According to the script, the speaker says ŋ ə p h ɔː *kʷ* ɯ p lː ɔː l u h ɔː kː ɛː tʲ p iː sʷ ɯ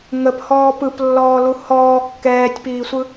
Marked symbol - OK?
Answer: no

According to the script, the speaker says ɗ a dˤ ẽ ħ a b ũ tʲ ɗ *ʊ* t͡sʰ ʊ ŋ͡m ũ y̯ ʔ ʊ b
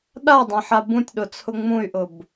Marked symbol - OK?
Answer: yes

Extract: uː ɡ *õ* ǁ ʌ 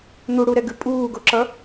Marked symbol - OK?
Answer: no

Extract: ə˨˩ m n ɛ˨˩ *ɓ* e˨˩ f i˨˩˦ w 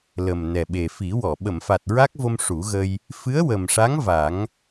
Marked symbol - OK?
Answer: yes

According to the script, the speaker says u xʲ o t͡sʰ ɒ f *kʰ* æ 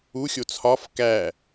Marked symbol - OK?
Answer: no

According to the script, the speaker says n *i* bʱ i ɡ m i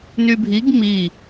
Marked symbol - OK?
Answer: no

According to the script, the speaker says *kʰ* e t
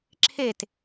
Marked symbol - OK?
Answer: no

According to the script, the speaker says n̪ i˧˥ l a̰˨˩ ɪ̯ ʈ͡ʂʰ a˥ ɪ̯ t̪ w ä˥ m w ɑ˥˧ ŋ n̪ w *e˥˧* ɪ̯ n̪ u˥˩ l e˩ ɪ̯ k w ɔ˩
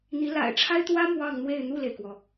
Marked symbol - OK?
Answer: yes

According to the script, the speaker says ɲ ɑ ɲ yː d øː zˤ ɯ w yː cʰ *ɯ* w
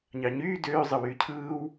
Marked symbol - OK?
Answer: no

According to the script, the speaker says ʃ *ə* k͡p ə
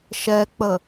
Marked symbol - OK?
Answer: no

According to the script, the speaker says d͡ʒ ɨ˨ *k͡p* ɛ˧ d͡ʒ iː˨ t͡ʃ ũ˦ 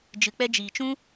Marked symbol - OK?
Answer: yes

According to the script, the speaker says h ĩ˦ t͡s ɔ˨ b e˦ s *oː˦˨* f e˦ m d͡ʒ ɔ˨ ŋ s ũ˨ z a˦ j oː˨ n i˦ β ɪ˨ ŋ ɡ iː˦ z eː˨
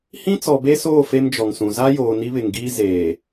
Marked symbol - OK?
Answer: yes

